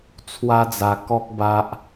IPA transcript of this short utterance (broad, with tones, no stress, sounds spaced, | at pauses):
t͡sʰ w a˦ d͡z a˧ k ɔ˦ k̚ b a˦ ʔ